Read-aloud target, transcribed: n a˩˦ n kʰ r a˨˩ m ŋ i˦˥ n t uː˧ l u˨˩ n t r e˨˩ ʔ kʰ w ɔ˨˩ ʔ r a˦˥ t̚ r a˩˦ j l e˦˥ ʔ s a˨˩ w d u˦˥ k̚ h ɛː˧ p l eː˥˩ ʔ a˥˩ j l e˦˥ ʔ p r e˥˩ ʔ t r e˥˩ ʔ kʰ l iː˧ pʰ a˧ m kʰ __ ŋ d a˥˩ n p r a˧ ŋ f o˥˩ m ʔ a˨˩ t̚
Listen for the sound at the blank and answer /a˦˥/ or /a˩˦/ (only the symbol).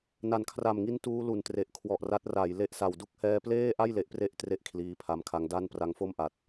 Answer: a˦˥